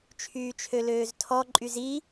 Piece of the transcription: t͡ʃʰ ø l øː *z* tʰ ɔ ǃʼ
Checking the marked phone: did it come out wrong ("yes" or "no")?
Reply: no